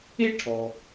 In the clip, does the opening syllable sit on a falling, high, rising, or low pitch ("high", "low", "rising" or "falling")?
high